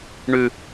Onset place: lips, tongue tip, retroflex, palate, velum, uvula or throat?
retroflex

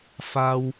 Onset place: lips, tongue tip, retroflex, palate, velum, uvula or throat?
lips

